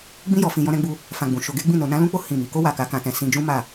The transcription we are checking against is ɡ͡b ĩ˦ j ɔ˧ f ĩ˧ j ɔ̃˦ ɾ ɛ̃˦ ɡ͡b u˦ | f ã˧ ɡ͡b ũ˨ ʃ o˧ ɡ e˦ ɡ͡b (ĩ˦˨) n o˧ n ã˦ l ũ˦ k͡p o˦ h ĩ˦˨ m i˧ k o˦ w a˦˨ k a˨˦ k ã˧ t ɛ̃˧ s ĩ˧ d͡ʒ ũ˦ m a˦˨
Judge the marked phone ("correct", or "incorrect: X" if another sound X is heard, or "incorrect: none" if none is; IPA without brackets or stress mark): correct